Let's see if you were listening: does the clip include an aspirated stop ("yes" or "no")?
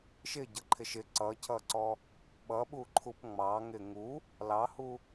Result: yes